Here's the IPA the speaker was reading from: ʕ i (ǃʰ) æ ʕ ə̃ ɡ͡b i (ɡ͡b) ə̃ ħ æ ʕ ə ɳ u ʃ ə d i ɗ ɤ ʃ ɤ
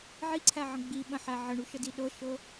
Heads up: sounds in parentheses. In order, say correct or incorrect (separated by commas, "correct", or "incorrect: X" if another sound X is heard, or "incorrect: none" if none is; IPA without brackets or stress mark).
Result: incorrect: ǀʰ, incorrect: ɓ